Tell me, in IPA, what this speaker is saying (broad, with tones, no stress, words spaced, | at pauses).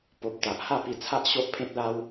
po˨p̚t̪a˨ʔ ha˥˧pi˧t͡sʰa˦ʔ ɕo˦ʔpʰẽ˦t̚la˦w